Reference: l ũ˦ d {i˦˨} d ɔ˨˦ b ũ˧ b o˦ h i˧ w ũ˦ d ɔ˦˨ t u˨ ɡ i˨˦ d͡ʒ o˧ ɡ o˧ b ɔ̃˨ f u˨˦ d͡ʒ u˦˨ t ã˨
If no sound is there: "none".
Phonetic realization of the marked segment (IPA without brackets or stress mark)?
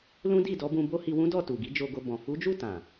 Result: i˦˨